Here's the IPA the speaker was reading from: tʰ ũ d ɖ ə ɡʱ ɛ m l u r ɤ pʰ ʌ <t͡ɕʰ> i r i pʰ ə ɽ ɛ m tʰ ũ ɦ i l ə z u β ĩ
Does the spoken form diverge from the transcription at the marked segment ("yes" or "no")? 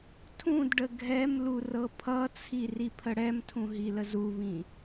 yes